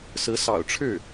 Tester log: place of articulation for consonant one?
alveolar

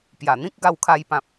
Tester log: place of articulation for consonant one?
labial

